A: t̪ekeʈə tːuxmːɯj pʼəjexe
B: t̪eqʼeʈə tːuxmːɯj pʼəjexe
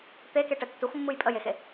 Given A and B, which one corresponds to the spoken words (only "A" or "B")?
A